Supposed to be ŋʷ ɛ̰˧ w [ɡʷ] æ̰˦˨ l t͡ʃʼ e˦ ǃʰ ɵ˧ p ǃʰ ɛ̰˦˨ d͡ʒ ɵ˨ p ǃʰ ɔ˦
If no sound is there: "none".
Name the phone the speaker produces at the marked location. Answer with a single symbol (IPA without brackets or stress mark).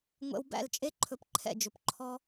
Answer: b